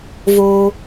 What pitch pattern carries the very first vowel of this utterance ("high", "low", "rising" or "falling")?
high